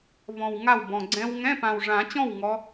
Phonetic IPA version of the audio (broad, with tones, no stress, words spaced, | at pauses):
vɔ̃˨˩w ŋa˥˩wbɔ̃˨˩ ɡ͡ǀɛ̃˦˥w ŋɛ̃˧˥˧pã˨˩wʐã˨˩˦t͡ɕɔ̃˥˩w ŋɔ˨˦